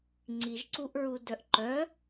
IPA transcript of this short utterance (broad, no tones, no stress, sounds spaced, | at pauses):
ŋ͡ǀ i ʒ ǀ u ʔ ɹ u d œ ʔ ǃ œ